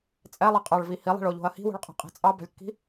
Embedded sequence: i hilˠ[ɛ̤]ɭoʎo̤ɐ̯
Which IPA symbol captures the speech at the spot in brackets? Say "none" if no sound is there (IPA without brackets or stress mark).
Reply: ɛ̤